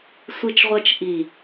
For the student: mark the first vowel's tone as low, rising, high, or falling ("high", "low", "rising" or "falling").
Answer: low